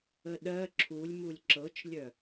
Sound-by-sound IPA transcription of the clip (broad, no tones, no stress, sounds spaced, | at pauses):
ə ɗ ɜ ǁʰ u lʲ m u lʲ ǁ ɤ t͡ʃ lʲ œ